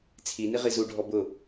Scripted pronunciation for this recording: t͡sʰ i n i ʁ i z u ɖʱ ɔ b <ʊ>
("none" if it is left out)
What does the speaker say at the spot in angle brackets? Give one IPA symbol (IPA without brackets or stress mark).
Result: ʊ